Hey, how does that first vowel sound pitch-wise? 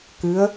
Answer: rising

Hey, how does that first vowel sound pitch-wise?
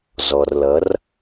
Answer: low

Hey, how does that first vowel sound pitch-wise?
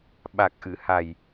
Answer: low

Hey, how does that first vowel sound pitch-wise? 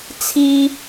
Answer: high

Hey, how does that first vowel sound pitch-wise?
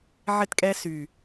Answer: falling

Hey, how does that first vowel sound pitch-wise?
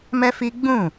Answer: high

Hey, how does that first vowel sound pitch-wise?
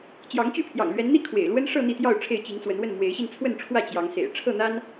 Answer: rising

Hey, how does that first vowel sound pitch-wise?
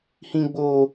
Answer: high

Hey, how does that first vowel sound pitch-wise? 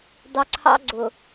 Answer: low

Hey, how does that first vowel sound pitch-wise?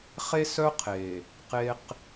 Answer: high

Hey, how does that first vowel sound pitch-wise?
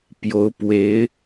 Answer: rising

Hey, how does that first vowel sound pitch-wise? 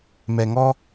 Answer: low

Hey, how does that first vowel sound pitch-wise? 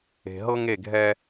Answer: low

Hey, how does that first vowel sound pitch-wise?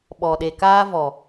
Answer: low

